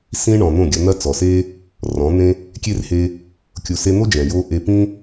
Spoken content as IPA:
sĩ˦ ɳɔ̃˨n̪õ˦˨ɡʲɐ˧ n̪ɐ˦t͡sɔ˨se˦ | rɔ̃˨˦n̪ẽ˦ | kʲe˦rhe˧ | kʲo˨se˧n̪o˦ d͡ʒɛ̃˨jo˦ ʔe˧pĩ˦

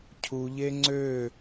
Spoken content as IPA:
cʰuʎe ŋ͡ǀø

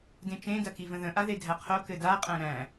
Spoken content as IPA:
dẽt͡ʃẽ dɐkivə̃ðə̃ ʔaðedʱæqʰo kɘda qʼæ̃ɾæ̃

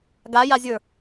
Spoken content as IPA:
ɡajazʲə˞

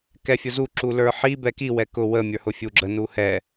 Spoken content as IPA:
kɛfʲʊzu ǁulə˞ħi bɛki wɛkʊ wə mʲə˞hʊfʲuɡ͡ǁə nuhɛ

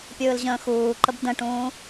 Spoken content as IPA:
pʲɯːlʑə̃ːxuːǃəb də̃ʈũː

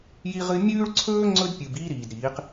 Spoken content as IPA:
ji˦ʁɨ˦ mʲʉː˦ɭǀʰɵː˦ ŋ͡ǀɵ˦dpʲɨ˨b iː˦ɾiː˨dɾiː˨˦q

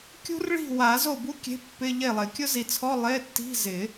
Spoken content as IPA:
kʲṳ˦˥rɭi̤˥˩ wa˨˩˦zo˥˩bu˦˥ kʲe̤˧˥˧pːɪ˧˥˧ʎe˥˩lˠɪ˨˩˦ kʲʊ˦˥zi˨t͡sʰɔ˧˥˧ lˠe˧˥˧tːi̤˧˥˧zɪ˨˩˦

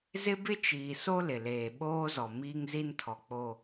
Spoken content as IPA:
zɪ˦bɪ˦t͡ʃiː˨so˦ lɪ˨leː˨ ɓoː˦zɔ˨ miː˦ŋzi˦ntʰɔ˨k͡po˨

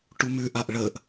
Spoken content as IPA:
ʈumʉʔaʔ ɭəːʔ

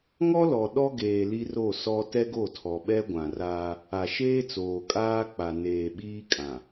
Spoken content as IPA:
ŋɔ˦lɔ˨ ɗɔ˦ɡeː˨ li˦ro˦˨sɔ˦ tɛ˦ɡo˦˨tʰɔ˨ɓɛ˦ ɡʷã˨raː˦ | a˨ʃeː˦t͡soː˨ kʼaː˦k͡pa˨ neː˨ɓiː˦kʼã˨

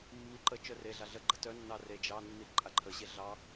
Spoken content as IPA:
mːi ǃə t͡ʃœreɮa ɮə ɡ͡ǃətœnːɑ re d͡ʒɑnːi ǃʼaǃʰəɕe ɮɑ

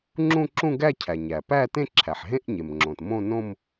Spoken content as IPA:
ŋ͡ǁũ˥˧ǁũ˥˧ɡæ˥˧cʰæ˩ ɲæ˩pæ˥˧tẽ˥˧ ǁʰæ˩ħɦẽ˥˧ʔɲe˩mŋ͡ǁõ˩t mõ˥˧nõ˥˧m

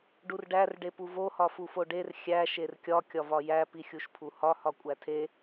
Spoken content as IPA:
ɖurɖær ɖepuvo hɒfufoɖer xʲæ ʃerkʲɒ kʲɒvɒjæ pixʲuʃpʰuhɒ hɒkʷʼætʰe

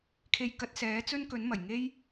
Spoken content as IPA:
kʰe˧jkɐ˧t̚ sɛː˨˥t͡sɵ˥n kɵ˨˥nmɐ˨˩j ŋe˥j

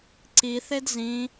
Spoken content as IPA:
ǀiθed zĩ

